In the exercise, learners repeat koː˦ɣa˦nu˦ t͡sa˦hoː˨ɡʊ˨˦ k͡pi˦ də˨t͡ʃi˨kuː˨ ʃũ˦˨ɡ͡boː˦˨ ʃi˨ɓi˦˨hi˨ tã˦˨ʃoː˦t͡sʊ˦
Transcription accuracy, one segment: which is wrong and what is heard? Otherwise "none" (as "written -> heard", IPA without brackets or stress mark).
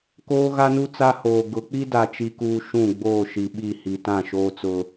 ə˨ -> a˨